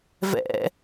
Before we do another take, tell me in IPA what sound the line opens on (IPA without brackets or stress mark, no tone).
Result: v